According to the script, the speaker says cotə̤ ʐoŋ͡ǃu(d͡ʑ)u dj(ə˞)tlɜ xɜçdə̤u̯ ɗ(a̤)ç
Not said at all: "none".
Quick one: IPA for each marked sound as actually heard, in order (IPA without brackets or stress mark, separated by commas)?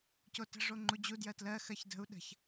d͡ʑ, ɜ, ə̤